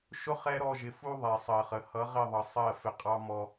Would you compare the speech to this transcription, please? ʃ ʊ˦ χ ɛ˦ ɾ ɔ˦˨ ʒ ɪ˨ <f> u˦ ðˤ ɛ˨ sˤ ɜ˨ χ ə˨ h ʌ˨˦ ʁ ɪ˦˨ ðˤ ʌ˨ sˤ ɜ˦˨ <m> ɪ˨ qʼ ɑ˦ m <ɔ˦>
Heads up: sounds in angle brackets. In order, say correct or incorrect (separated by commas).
correct, incorrect, correct